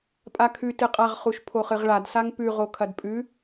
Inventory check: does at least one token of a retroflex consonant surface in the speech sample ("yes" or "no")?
yes